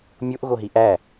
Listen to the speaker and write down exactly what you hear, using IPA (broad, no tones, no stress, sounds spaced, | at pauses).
mʲ o ʔ ɣ o ɦ i ʔ æ